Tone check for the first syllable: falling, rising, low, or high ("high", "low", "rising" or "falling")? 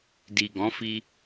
low